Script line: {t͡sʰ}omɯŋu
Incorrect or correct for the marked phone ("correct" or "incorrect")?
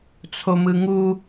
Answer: correct